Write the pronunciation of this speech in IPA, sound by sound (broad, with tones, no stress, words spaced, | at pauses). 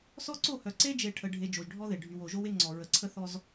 sɔ˦ǀo˦˨hœ˨ ǀe˦d͡ʒe˨ ʈʰə˨ ɖʱe˨ d͡ʒo˨ʒɖʱɔ˦ðe˨ ɖʱy˨w o˨ʒo˦we˦ŋ͡ǀɔ˨ ɹə˨ǀʰə˦θɔ˦z